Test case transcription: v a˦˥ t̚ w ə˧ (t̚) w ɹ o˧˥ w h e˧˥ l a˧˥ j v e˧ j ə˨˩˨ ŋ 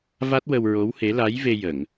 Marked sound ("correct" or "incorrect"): incorrect